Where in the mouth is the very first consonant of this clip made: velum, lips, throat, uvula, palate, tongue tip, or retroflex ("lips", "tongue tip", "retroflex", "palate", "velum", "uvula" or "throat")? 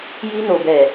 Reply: palate